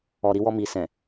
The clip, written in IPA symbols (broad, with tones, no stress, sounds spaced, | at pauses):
ɔ˨ ɾ i˧ w ɔ˧ m i˨ s ɛ̃˨